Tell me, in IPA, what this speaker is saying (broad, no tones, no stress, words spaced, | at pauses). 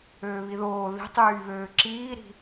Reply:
øːβiðoː ði̤tˤyːβøː ǁiːɾi̤